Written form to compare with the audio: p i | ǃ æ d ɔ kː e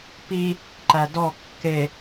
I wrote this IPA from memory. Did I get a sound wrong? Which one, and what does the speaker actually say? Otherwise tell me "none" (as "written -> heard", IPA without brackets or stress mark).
none